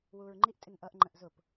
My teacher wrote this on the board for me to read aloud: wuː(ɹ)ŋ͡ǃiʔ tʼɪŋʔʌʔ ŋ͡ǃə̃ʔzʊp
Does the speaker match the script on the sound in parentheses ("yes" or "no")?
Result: yes